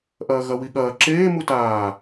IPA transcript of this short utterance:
ʔ ɐː ɣ ɐ w i ɠ ɐː ǁ eː m u t aː

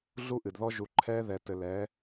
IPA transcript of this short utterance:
ɮ u˦ ʔ ɨ˨ d ð ɔ˦ ʒ u˨ ǃʰ ɛː˦ ð ɛ˨ t ɘ˨ l ɛː˨˦

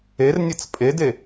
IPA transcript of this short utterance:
e r nʲ ʌ t͡s pʼ e d e

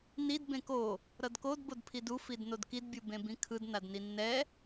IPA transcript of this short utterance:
n i d b ẽ k o | ɾ ʌ d k o d b o d pʰ i d u f i d n o d k i d bʲ u b ẽ b ĩ kʰ ɯ d n a d n i nː ɛ

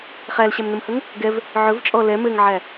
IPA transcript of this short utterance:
χ æ l ɕ æ m n ə m h ɵ ŋ | ɡ ɛ v | ʕ ɵ v t͡ʃʼ ɔ l ɛ m ɘ ŋ ʕ æ

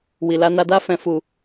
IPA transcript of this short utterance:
w i˨ l a˧ n a˧ d a˦ f ɛ̃˧ f u˧

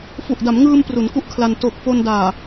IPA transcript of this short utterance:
f u˨˩ ʔ d a˩˦ m ŋ ɯː˧ m p r u˩˦ n k u˥˩ ʔ kʰ l a˧ n t o˨˩ k̚ f o˧ n d aː˨˩

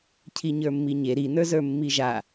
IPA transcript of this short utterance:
cʰ i ɲ ə˞ mː i ɲ e ɾ i n ə˞ z ə˞ mː i ʒ a

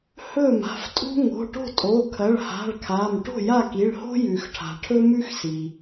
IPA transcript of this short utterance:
h ɵ˥˨ m a̤˩˧˩ f tʼ ṳ˥ ŋ o̤˩˧˩ ʈ o̤˥˨ tʼ o˩˧˩ kʰ ɐ˩˧˩ ɭ h a̤˩˧˩ ɭ kʰ a˩˧˩ m ʈ o̤˥˨ j a˥˨ k i˩˧˩ ɭ h o̤˥ j ʉ˩ x ʈʰ a̤˩ ʈʰ ɵ˥ m ʉ˥ x s i˩

